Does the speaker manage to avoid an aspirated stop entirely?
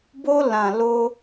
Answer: yes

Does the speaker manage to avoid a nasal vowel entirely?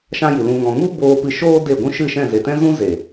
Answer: no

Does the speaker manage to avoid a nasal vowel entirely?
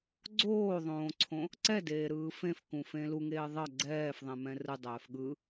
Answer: no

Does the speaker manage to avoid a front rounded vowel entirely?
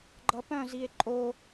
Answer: no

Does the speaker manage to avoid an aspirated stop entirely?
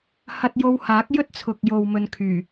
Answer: no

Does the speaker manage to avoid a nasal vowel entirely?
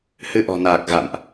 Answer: yes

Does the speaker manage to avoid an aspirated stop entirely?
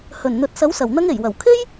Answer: no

